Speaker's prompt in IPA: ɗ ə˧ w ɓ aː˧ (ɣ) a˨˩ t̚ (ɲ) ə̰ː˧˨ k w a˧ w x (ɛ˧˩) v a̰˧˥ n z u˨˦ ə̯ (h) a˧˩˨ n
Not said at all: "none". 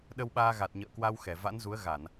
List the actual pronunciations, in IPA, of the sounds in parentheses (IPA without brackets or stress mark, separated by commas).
ɣ, ɲ, ɛ˧˩, ɣ